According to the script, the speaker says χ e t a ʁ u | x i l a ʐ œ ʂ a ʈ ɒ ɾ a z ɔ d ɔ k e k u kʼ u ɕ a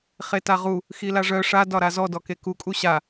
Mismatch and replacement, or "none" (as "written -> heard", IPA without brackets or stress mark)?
ʈ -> d